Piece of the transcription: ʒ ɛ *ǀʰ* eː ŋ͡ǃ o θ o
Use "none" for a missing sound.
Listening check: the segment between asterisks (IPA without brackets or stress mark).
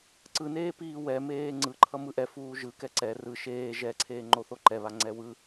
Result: ǀʰ